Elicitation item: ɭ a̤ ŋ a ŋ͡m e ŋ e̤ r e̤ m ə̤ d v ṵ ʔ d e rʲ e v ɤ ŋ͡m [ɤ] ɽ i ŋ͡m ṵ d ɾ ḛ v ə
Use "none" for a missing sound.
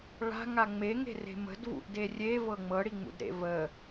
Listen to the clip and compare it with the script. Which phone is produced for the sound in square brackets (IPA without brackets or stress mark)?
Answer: ɤ